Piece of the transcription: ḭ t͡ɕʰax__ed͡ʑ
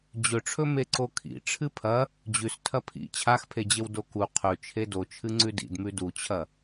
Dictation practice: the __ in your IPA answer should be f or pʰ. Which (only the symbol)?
pʰ